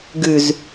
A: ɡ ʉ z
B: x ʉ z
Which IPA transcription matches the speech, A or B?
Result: A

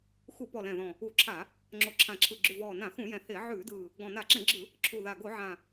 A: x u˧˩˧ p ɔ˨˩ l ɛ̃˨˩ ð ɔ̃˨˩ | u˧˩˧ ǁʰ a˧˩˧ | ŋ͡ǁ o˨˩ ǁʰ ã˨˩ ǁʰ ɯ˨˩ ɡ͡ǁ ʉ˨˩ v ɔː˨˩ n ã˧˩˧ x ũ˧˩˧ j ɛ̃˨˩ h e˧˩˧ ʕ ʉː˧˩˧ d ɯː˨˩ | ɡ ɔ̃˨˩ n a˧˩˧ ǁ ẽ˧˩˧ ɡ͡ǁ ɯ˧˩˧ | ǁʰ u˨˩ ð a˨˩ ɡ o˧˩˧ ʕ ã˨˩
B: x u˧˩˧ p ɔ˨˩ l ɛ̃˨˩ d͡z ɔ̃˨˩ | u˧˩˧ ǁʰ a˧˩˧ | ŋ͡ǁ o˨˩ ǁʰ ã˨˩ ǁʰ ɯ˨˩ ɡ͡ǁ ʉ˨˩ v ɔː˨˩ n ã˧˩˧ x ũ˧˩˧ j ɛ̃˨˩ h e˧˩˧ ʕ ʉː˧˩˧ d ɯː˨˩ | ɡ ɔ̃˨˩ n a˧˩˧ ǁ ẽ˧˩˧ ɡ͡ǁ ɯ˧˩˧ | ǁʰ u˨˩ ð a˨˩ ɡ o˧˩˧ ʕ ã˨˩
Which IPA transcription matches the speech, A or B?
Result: A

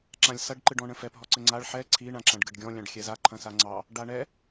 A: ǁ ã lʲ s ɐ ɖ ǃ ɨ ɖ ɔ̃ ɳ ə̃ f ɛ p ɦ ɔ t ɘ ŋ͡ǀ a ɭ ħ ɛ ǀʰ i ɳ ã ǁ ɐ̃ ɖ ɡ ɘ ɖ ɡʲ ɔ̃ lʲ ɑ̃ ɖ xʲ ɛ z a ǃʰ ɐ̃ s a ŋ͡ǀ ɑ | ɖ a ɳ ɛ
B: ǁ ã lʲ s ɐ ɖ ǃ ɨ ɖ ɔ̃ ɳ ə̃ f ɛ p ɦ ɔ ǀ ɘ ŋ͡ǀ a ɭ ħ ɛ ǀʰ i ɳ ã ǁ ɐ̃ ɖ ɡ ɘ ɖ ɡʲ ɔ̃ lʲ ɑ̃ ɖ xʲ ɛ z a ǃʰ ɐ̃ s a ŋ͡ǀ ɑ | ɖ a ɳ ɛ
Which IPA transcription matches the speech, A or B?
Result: B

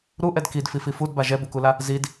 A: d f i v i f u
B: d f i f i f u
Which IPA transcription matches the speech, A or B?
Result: B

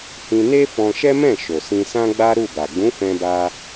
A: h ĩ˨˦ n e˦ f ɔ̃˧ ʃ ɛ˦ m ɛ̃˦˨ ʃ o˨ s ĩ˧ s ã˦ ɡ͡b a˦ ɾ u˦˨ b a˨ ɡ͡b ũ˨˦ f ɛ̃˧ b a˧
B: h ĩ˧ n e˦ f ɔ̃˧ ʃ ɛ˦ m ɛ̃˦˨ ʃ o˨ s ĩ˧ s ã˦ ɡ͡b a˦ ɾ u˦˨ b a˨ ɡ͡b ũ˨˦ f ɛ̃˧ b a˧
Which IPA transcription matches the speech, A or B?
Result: B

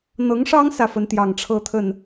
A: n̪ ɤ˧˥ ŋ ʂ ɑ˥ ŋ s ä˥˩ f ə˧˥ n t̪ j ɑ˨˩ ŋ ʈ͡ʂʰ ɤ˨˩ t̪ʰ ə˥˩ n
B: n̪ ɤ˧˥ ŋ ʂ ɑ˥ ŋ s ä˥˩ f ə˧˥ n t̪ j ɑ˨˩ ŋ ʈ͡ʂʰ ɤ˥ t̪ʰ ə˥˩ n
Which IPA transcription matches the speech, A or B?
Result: B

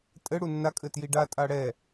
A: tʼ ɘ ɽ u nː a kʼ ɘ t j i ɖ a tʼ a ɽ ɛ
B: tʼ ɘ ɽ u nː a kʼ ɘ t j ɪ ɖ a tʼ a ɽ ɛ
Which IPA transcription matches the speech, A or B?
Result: A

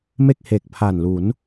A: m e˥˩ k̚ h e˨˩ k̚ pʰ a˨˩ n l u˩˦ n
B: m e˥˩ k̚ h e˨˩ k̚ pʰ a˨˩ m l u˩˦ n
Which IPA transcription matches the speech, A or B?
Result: A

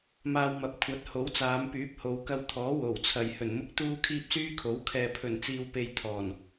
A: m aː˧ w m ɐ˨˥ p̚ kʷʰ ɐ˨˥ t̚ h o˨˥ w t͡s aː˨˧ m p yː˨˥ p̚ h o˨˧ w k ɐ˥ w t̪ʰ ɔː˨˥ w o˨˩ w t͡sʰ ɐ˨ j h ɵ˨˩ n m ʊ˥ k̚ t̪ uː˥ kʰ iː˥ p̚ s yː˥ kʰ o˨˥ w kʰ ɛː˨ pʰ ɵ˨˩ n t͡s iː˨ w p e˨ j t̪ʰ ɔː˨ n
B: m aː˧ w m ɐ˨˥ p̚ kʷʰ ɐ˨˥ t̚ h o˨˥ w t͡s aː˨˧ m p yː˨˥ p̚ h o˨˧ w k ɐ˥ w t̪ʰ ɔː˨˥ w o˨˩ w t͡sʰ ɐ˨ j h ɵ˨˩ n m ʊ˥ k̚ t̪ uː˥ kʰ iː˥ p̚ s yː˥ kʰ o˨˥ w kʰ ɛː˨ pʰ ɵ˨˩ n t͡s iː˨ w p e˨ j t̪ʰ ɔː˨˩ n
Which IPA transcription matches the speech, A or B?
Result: B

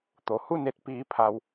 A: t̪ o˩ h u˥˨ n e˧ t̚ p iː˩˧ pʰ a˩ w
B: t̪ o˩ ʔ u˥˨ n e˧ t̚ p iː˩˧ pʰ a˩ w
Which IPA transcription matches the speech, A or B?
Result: A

